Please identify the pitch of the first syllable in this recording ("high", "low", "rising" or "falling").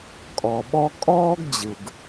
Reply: low